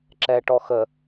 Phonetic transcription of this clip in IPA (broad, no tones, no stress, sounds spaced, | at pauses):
ǁ ɛ ʈ ɔ x ə